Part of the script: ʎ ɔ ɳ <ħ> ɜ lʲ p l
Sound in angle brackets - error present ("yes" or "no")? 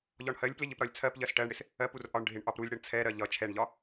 yes